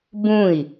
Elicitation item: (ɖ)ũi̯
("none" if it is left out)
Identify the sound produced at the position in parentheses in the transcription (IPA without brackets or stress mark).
b